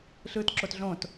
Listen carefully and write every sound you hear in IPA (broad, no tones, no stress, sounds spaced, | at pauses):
ɬ ɯː t ǁ o t ɮ õ t